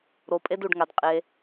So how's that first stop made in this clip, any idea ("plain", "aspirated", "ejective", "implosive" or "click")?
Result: ejective